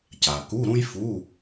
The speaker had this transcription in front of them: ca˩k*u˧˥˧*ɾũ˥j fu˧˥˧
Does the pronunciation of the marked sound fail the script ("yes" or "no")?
no